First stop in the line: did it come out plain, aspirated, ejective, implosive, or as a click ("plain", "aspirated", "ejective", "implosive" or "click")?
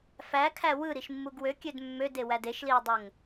aspirated